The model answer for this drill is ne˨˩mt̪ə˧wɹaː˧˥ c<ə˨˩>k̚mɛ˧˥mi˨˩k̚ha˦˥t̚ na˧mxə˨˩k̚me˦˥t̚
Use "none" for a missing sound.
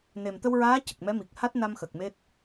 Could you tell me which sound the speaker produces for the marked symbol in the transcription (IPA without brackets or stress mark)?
ə˨˩